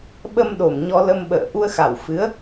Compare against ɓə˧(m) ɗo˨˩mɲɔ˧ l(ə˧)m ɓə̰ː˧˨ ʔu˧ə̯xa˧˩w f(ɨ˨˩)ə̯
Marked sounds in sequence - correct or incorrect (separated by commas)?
correct, correct, incorrect